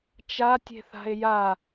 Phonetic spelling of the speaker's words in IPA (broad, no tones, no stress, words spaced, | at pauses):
t͡ʃatʲe̤θa̤e̯ ja